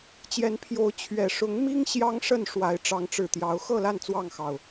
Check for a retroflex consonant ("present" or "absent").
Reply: present